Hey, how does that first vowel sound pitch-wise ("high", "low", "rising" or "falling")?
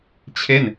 falling